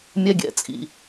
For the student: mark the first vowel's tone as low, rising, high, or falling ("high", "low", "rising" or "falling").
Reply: high